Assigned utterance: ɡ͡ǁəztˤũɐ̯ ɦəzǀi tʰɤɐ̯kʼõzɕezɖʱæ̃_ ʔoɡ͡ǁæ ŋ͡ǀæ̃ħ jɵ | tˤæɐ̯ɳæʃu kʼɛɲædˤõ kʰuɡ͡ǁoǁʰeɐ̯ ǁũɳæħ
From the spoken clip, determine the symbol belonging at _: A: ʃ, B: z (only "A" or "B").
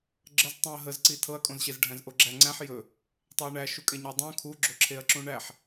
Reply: B